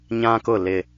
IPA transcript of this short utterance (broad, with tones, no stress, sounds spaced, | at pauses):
ɲ ã˦ k ʊ˦˨ l ɪ˦